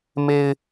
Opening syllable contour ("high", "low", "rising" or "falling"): low